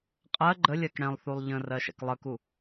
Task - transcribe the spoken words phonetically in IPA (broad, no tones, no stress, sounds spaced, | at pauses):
qʼ ɜ ɡ͡ǃ ə lʲ ɜ k ɽ ɛ̃ lˠ θ u lˠ ʎ ə̃ r ɜ ʃ ɛ̰ k lˠ ə k u